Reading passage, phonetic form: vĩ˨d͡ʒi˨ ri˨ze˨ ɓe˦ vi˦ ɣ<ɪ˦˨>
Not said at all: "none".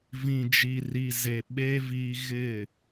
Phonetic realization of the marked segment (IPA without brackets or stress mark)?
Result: ɪ˦˨